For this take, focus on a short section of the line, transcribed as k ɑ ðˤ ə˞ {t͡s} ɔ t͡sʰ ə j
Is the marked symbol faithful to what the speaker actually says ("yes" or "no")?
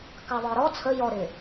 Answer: no